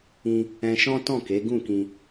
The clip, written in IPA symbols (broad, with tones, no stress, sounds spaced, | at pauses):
ĩ˧ | ɛ̃˧ ʃ ɔ̃˦ t ɔ̃˦˨ k e˨˦ ɡ ũ˦˨ k ĩ˧